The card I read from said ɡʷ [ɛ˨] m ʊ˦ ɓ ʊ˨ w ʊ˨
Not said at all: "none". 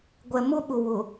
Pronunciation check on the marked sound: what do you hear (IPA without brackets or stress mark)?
ɛ˨